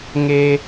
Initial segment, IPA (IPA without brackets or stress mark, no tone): ŋ